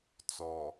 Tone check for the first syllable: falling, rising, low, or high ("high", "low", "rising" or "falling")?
low